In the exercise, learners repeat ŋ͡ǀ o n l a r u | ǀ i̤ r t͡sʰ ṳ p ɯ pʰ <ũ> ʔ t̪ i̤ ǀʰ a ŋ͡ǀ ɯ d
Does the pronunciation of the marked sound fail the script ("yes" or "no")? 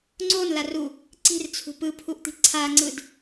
yes